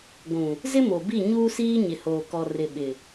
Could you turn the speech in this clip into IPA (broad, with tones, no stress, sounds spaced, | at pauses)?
ɡʷ ũ˨ | z ɪ˦ m o˨ b i˦˨ ɲ uː˦ s iː˦ ɲ ɪ˨ h oː˨ k ɔ˨ r ɪ˨ ɓ ɪ˨